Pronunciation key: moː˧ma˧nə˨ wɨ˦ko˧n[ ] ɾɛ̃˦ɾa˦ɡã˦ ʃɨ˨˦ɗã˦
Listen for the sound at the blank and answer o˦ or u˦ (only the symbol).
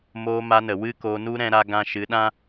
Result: u˦